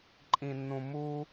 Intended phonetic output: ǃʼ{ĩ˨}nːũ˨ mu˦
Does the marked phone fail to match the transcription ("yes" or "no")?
no